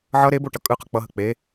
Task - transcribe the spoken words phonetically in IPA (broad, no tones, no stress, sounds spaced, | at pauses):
ʕ ʌ ɾ e b o ʈ ʌ kʼ ɯ q ʌ k͡p ʌ ɦ ə k͡p e